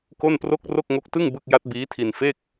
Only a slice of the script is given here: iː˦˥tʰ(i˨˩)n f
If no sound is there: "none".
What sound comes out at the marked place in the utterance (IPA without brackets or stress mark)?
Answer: i˧